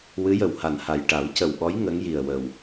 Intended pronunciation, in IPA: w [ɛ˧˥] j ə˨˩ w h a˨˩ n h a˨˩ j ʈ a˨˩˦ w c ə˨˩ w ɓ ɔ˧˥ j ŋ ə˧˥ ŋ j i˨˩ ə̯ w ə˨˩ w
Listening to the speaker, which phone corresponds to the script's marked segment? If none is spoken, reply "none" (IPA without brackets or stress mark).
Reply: ɨ˧˥